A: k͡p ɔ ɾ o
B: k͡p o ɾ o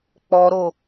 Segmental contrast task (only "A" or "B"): A